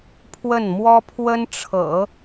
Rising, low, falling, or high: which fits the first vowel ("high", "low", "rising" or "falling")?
falling